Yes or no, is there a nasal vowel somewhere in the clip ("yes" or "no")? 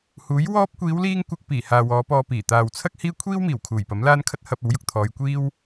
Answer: no